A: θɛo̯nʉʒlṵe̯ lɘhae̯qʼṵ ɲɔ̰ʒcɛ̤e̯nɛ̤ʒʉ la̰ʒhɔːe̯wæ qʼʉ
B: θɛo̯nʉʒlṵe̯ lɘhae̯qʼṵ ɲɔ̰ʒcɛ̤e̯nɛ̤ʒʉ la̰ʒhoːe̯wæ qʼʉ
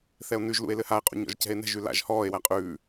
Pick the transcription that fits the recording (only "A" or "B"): A